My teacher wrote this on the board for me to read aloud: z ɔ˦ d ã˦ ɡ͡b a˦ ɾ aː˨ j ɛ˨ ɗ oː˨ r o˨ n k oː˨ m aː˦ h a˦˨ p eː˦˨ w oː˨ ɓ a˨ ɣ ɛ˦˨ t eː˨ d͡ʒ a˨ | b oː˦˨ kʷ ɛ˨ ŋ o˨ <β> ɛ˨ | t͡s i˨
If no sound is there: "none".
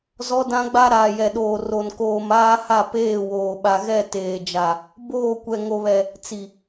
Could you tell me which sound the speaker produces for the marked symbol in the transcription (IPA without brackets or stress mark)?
β